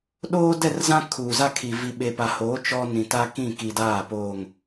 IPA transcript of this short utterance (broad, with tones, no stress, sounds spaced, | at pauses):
ɗ oː˦ d ɛ˦˨ r z ã˦ kʰ uː˨ z a˦ kʰ i˨ v i˨ ɓ e˨ p a˨ h oː˨˦ t͡ʃ ɔ˦ n ĩ˨ t a˦ k ĩ˦˨ k i˨ d aː˦˨ p oː˨ ŋ